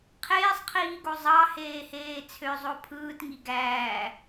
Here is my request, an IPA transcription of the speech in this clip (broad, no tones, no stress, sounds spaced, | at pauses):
qʰ eː sˤ qʰ iː ɡ o zˤ ɑ h eː h eː t͡sʰ ø zˤ o pʰ ɯː t ŋ i ɡ æː